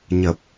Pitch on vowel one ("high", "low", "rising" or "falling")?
low